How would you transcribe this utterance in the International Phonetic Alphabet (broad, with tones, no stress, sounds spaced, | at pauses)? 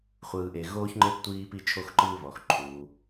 χʷ ɯː˨ ʔ e˨ ɣ oː˥ ç ŋ͡ǃ e˥ p tʷ iː˦ p i˦ t͡ʃʰ o˦ x ǃ ɯː˦ β ɔ˩ x ǃʰ uː˩